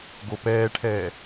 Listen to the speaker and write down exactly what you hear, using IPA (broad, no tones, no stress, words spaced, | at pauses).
ɡopɛːʈʰɛː